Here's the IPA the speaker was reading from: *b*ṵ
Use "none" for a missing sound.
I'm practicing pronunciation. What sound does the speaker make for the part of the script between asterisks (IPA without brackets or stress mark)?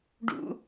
ɖ